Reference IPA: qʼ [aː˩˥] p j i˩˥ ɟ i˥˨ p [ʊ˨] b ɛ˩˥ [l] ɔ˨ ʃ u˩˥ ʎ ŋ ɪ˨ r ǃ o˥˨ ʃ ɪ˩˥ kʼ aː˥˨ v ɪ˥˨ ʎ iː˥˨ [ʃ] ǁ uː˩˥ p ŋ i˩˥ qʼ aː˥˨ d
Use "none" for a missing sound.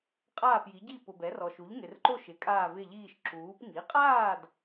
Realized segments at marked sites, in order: aː˥˨, ʊ˨, r, ʃ

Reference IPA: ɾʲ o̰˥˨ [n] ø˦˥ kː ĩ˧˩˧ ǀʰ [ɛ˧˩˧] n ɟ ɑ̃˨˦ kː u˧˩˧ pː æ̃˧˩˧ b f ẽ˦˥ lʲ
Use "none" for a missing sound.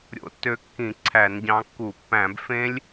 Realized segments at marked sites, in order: tː, æ˧˩˧

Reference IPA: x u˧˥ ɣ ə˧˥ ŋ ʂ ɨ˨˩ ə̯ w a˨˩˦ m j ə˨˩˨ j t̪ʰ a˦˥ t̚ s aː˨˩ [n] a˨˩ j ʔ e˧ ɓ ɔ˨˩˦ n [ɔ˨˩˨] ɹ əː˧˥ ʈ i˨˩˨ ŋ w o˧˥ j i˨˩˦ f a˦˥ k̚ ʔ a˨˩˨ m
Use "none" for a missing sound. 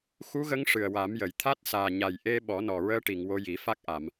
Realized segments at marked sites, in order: ɲ, ɔ˨˩

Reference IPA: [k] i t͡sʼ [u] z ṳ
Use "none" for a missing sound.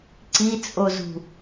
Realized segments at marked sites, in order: ǀ, o

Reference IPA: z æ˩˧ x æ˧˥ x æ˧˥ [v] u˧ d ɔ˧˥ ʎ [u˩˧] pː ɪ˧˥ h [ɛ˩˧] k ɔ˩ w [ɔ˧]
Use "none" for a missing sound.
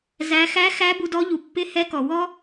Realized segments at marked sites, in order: b, u˩˧, ɛ˧˥, ɔ˥

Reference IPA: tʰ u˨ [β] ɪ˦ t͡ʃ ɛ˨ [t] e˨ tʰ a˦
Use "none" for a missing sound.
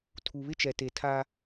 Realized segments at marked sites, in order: β, t

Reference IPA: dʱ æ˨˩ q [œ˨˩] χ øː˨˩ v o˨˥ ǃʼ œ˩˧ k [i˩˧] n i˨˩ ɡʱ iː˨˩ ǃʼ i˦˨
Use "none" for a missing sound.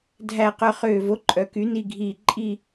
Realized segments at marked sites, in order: œ˨˩, y˩˧

